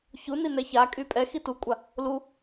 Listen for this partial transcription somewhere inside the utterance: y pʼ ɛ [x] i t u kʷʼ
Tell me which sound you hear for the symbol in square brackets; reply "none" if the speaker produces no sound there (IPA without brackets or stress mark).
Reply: x